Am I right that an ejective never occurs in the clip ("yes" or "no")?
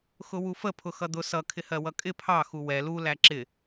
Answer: no